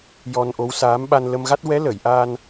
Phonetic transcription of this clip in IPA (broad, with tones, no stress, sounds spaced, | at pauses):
j ɔ˧ n ʔ o˧˥ w s aː˧˥ m ɓ a˧ n l ə˧ m ɣ a˦˥ t̚ w ɛ˧˥ l ə˨˩˨ j ʔ aː˧ n